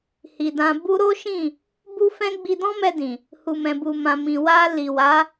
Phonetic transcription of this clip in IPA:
hi˨dã˧ bu˦ ɾo˦ʃĩ˦˨ | bu˦fɛ̃˦ ɡ͡bi˧dɔ̃˦mɛ˧dĩ˨ | hu˧mɛ̃˧bu˧mã˧ mĩ˨wa˧ li˨wa˨˦

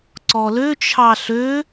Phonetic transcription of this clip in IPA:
ǀɔlø t͡ʃʰɑɬø

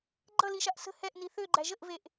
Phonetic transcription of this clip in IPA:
ɡ͡ǃʌliʃaʔ sə̤ hɛʔni θøɡ͡ǃæ ʒəʔveʔ

